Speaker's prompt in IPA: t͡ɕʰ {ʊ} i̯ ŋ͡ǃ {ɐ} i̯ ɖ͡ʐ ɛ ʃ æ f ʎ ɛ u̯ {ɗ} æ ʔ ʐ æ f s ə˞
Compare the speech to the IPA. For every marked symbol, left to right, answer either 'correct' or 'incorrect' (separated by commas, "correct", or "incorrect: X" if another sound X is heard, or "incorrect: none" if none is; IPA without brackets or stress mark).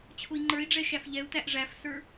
correct, incorrect: ə˞, incorrect: t